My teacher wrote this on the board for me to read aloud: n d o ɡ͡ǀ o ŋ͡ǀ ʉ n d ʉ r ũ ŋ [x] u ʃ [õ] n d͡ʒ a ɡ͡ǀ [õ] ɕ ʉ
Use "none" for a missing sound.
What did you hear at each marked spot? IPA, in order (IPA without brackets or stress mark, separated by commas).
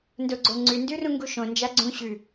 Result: ɡ, õ, ũ